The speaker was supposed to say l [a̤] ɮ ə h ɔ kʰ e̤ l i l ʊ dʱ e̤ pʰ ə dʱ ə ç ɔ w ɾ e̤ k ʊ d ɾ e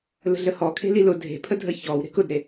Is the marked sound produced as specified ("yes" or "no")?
no